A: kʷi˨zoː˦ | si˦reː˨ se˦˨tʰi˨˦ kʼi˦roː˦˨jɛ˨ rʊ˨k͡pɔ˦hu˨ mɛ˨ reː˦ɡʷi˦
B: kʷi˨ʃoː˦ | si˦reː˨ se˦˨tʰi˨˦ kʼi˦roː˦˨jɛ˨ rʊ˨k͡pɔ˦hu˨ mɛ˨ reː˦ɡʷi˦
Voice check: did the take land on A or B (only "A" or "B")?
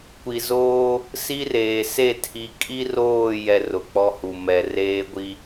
A